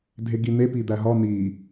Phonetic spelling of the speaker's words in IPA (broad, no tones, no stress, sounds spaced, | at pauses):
dʱ e ɡ i n̪ e p i d̪ æ ɦ ɒ n̪ i